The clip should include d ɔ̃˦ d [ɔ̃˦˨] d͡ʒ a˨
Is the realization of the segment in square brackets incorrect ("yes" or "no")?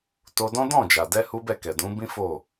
no